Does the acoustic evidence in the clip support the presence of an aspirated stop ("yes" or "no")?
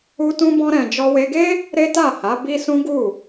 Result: no